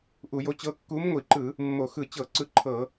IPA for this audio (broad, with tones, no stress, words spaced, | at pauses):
ʔu˧˩˧jo˧˥t͡ɕɤ˧˥ kːu˧˥mŋʷi˧˩˧ǃɯ˧˩˧ | mːo˧˩˧xɯ˧˩˧t͡ɕɤ˧˩˧ ǀɯ˧˥ǃʰɤ˧˩˧